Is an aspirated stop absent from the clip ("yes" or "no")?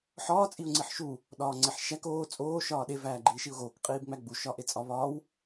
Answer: yes